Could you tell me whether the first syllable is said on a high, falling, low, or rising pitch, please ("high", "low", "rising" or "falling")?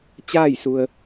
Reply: falling